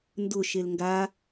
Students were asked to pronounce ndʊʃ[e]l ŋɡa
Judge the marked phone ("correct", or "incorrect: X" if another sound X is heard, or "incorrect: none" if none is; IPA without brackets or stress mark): correct